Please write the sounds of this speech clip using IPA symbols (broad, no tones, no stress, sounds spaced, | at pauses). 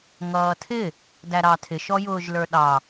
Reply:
ŋ ʌː tʰ ɪ | d æ ɾ ɑ tʰ ɪ ʃ ɔ j ʊː ʒ l ə˞ ɗ ɑ